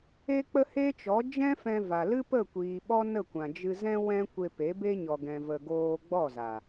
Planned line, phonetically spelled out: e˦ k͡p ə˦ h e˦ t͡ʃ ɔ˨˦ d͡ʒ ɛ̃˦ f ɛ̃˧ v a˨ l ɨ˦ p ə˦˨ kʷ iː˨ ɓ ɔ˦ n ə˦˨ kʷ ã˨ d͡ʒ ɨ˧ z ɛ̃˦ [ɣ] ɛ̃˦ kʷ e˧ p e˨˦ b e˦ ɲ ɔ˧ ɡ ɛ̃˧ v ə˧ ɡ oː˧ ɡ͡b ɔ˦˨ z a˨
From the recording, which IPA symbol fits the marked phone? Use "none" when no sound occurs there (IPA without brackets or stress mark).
w